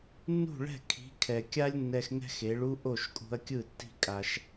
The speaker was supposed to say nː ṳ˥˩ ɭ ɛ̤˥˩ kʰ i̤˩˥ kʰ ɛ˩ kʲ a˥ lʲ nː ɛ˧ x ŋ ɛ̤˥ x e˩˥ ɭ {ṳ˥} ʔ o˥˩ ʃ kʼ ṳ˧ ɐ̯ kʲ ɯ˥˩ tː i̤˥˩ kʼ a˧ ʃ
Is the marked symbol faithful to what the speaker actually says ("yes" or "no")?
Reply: no